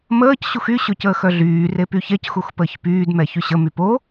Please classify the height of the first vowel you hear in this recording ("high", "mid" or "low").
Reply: mid